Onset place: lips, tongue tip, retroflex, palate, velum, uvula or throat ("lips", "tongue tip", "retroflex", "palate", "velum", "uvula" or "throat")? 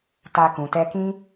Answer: tongue tip